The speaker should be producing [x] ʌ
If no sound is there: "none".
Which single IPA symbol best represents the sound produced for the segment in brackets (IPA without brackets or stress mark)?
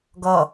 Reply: ɡ